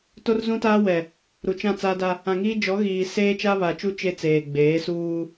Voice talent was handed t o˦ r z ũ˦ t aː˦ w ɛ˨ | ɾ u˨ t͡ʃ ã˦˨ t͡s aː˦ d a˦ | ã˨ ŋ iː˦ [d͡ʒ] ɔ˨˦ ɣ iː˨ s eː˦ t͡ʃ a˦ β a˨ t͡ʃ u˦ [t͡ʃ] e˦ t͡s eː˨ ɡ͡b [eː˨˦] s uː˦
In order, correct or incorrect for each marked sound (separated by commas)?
correct, correct, correct